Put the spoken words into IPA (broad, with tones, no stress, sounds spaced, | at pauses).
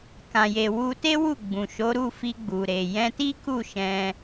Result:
k ã˨ j e˨ w u˧ t e˦ w u˦˨ ɡ͡b ũ˨ ʃ o˨˦ ɾ u˦˨ f i˧ ɡ͡b u˨ ɾ e˨ j ɛ̃˧ t i˦ k u˦˨ ʃ ɛ̃˧